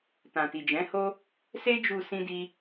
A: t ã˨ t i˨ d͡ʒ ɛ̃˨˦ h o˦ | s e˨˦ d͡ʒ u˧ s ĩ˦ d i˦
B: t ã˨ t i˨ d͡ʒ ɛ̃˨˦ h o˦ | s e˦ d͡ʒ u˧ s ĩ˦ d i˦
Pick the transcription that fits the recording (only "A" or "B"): B